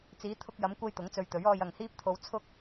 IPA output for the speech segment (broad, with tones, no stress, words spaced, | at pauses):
t͡siː˨˧t̪ʰʊ˧k̚jɐ˨˧mkʷɐ˧j t̪ʊ˨˥ŋt͡sɵ˧ɥt̪ɵ˨˥ɥ ɔː˧jɐ˨ŋhiː˥p̚t̪ʰo˧w t͡sʰʊ˥k̚